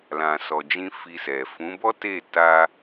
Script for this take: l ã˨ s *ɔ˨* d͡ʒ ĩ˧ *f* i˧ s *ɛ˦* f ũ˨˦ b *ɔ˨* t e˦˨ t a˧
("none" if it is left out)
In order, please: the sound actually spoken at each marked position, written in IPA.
ɔ˨, f, ɛ˨, ɔ˦

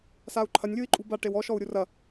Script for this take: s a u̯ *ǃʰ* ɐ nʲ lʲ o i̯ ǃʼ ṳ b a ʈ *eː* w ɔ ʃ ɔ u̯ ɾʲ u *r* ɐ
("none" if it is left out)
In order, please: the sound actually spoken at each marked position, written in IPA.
ǃʰ, e, r

